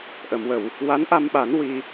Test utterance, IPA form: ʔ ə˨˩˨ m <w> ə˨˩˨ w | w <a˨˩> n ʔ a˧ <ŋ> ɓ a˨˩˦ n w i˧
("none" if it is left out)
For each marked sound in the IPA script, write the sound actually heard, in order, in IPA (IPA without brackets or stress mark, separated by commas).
w, a˧˥, m